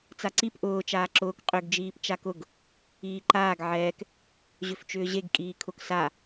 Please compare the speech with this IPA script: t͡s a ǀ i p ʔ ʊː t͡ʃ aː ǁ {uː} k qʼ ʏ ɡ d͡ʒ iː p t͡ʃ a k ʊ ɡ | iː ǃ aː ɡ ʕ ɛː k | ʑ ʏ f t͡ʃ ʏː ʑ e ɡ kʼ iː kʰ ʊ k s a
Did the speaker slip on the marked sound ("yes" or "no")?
yes